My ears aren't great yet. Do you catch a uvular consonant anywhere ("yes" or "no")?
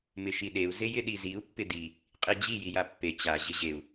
yes